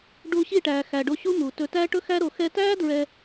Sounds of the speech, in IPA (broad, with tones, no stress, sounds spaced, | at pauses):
ɖ uː˧ ɕ i˦˨ ʈ æː˨ x æ˨ ɖ o˧ ɕ u˦ m uː˨ t ɵ˧ t æ˦ ʈ ɵ˦ x æ˦ ɾ o˧ x ɛ˦ t æː˦ d ɹ ɛ˧